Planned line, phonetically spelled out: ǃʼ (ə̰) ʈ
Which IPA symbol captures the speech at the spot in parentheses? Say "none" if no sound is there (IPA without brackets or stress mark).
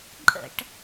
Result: ə̰